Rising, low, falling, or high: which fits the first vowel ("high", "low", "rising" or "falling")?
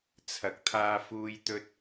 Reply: rising